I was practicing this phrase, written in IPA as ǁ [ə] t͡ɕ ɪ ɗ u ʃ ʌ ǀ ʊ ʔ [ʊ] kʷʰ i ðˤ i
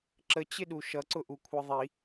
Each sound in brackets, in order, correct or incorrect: correct, incorrect

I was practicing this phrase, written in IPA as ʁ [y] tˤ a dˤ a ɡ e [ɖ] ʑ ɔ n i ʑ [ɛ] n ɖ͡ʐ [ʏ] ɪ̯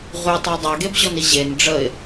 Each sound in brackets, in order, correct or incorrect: correct, incorrect, incorrect, incorrect

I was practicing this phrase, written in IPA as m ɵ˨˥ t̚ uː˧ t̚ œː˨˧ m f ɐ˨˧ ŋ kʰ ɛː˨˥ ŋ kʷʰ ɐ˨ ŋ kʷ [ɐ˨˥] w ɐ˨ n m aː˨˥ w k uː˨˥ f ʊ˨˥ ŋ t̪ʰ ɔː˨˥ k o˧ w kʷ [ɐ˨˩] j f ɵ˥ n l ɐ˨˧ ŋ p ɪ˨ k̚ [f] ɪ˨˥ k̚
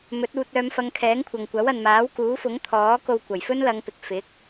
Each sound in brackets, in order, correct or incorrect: correct, correct, correct

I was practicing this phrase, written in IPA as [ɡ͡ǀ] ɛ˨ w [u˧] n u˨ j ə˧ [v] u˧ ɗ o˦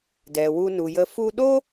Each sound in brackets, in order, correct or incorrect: incorrect, correct, incorrect

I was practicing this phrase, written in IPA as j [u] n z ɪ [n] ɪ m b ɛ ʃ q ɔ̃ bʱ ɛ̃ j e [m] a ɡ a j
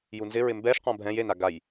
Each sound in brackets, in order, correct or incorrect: correct, incorrect, incorrect

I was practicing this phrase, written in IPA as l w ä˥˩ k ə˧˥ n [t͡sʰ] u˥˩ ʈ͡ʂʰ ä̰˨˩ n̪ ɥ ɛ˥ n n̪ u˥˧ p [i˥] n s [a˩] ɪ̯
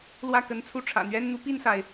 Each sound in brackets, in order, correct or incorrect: correct, incorrect, correct

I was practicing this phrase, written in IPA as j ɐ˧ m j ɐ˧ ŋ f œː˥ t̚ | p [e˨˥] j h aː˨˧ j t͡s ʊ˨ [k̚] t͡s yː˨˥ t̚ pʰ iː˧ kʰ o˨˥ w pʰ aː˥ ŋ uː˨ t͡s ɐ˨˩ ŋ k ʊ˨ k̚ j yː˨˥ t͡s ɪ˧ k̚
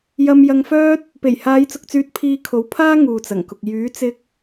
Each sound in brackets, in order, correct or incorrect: incorrect, correct

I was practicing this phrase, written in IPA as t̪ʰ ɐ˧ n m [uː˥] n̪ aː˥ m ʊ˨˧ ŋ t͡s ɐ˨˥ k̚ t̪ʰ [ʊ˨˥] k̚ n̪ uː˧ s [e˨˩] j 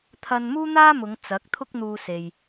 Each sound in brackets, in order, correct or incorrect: correct, incorrect, incorrect

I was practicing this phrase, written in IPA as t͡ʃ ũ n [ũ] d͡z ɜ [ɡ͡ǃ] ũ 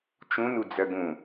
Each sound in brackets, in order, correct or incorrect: incorrect, incorrect

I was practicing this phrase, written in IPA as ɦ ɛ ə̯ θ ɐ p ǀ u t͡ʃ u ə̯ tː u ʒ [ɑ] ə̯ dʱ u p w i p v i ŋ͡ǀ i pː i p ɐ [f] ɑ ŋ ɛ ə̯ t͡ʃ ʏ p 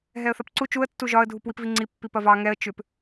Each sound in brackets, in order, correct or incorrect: incorrect, incorrect

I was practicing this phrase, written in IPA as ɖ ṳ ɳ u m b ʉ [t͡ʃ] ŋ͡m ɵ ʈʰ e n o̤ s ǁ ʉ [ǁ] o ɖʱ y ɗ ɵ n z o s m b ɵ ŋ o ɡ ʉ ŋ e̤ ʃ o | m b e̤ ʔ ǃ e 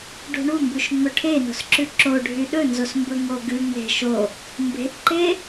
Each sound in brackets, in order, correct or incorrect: incorrect, correct

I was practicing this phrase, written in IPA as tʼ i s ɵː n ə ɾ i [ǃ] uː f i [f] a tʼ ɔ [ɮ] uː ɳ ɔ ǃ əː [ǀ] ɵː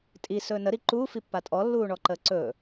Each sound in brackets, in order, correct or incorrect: correct, incorrect, incorrect, correct

